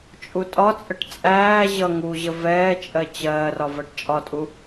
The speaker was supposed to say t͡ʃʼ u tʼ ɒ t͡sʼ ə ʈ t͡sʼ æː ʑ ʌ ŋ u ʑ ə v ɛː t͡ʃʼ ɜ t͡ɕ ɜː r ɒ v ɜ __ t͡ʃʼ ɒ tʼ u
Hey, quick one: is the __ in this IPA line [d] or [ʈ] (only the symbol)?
ʈ